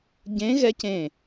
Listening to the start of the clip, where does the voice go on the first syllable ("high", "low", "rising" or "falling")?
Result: rising